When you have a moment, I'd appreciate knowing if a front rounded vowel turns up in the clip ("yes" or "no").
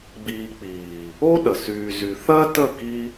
yes